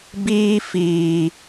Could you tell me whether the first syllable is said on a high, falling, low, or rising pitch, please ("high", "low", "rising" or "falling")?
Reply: high